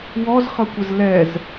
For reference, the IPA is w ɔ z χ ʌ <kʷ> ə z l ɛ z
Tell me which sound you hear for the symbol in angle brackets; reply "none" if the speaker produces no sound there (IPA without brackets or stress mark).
kʷ